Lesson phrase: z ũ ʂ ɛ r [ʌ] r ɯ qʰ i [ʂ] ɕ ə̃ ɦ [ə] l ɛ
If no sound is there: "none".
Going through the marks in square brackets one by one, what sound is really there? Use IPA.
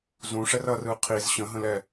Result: ʌ, z, ə̃

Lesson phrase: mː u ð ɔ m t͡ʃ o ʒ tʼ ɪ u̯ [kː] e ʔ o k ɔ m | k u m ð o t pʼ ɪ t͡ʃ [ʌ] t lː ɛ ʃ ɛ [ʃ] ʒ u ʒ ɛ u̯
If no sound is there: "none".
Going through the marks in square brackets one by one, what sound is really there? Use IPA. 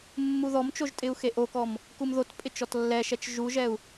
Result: x, ɔ, t͡ʃ

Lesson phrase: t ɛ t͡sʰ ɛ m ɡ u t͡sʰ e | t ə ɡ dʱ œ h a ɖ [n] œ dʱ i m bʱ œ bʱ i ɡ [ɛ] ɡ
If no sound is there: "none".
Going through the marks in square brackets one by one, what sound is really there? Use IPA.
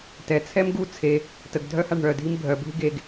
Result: ɳ, e

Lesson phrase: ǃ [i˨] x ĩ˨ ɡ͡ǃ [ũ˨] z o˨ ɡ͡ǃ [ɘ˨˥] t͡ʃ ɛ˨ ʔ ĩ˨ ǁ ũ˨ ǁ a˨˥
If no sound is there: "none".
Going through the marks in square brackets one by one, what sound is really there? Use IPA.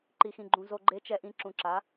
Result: i˨, ũ˨, e˨˥

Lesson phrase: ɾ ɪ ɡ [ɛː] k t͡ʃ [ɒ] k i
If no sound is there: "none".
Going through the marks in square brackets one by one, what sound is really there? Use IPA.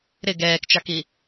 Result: ɛː, ɑ

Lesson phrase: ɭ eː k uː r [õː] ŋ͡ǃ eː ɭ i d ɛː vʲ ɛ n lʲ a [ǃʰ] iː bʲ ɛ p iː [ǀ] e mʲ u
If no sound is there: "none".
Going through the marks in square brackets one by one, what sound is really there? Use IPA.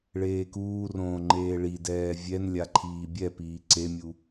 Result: õː, ǃʰ, ǀ

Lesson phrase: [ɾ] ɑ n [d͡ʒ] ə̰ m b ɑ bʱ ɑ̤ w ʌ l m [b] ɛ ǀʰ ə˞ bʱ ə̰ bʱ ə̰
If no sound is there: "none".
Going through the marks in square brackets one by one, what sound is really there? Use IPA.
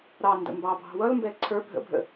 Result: ɾ, d, b

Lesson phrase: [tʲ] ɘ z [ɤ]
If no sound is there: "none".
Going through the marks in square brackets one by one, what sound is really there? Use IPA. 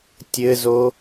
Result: tʲ, o

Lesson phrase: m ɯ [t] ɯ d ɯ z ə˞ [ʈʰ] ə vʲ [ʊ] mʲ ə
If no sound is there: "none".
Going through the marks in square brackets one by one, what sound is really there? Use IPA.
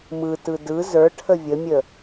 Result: t, ʈʰ, ə

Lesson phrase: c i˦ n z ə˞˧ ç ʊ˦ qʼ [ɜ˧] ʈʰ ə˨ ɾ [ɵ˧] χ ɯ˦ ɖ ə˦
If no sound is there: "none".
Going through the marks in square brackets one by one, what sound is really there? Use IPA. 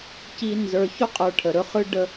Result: ə˞˧, ɵ˧

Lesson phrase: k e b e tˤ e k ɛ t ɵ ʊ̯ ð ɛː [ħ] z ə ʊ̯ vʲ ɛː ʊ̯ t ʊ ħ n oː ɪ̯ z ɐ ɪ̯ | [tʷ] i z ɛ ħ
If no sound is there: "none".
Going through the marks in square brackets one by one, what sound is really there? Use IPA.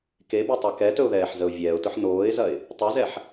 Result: ħ, tˤ

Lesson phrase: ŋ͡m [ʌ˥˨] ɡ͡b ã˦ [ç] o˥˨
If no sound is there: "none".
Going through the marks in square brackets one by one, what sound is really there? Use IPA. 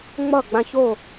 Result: ʌ˥˨, ç

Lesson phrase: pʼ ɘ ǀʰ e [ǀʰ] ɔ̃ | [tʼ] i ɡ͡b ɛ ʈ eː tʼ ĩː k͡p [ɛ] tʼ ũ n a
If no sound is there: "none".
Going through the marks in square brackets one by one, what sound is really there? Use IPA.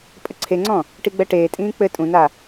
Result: ŋ͡ǀ, ʈ, ɘ

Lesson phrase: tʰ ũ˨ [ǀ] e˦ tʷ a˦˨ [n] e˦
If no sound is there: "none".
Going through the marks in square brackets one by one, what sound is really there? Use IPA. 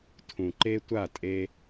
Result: ǃ, tʼ

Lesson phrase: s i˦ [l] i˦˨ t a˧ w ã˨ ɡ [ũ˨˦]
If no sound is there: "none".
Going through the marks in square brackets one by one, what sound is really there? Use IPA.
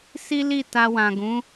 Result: l, ũ˨˦

